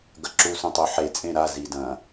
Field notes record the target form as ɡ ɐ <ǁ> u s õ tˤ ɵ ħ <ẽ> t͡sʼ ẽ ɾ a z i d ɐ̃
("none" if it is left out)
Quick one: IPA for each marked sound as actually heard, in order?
ǁ, e

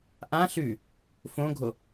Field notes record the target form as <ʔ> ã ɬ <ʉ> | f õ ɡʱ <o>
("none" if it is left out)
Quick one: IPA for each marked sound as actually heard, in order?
ʔ, ʉ, o

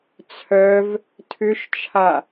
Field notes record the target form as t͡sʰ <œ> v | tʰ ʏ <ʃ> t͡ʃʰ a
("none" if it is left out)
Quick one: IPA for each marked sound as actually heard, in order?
œ, ʃ

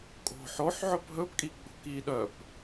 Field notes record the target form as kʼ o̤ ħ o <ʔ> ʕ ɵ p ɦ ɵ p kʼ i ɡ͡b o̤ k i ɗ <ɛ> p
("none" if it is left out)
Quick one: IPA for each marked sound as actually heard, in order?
ħ, œ

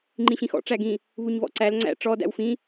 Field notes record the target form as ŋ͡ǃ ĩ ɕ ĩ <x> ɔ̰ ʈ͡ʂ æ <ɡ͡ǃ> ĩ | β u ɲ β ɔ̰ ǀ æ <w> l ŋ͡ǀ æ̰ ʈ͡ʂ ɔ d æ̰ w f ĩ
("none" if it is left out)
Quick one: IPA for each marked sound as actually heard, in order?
x, ɡ, none

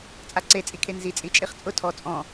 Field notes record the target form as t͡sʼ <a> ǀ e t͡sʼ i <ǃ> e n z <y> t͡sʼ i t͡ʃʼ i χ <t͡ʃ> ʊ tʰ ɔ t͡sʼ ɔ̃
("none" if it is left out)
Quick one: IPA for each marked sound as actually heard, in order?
a, kʰ, i, t͡sʼ

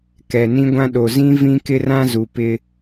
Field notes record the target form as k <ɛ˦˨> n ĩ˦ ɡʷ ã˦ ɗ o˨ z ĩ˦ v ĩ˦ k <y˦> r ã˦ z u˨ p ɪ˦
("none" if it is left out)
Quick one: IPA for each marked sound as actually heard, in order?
ɛ˨, ɪ˦

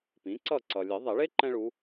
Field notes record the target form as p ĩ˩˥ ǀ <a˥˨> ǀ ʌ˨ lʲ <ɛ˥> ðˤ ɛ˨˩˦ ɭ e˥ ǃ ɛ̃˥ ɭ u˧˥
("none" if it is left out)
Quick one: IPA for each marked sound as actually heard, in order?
ʌ˥˨, ɛ˨˩˦

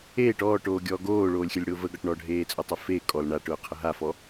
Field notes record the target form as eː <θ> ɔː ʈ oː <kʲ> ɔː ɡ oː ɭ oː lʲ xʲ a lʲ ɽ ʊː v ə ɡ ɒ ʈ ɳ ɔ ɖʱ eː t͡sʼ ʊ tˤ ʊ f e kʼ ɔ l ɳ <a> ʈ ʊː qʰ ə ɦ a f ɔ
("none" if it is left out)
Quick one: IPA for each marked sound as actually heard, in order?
ʈ, ɡʲ, a

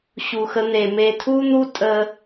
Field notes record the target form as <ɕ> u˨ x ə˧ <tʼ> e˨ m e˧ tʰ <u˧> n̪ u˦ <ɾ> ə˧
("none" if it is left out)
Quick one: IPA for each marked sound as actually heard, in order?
ɕ, n̪, u˦, tʼ

